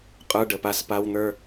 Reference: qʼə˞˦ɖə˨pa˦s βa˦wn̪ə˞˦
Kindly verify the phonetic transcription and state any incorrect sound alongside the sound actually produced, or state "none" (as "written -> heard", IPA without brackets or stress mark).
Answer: β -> p